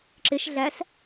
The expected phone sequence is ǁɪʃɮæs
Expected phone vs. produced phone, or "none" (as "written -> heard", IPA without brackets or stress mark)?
none